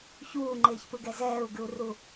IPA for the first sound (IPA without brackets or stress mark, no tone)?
ç